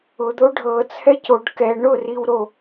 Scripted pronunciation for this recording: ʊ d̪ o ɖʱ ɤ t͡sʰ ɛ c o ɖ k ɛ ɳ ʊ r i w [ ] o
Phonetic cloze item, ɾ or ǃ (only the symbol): ɾ